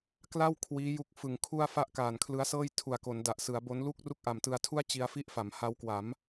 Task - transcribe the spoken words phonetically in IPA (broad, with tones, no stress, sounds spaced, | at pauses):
k l a˥˩ w kʰ w iː˦˥ j u˦˥ k̚ f ɯ˨˩ ŋ kʰ u˥˩ a̯ f a˥˩ ʔ k aː˨˩ n kʰ l ɯ˦˥ a̯ s ɤː˥˩ j tʰ u˨˩ a̯ k o˩˦ n d a˨˩ ʔ s ɯ˩˦ a̯ b o˦˥ n l u˥˩ k̚ r u˥˩ k̚ ʔ a˨˩ m t ɯ˧ a̯ tʰ u˥˩ a̯ t͡ɕ i˧ a̯ f i˥˩ ʔ f a˩˦ m h a˦˥ w k w a˩˦ m